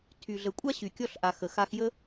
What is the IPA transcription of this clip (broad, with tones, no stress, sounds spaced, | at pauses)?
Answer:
tʰ y˩ ɮ ə˩ kʷʼ a˥ ɕ y˩ kʲ ɔ˧ ɬ ʔ a˩ x ə˩ x a˧ x j ə˥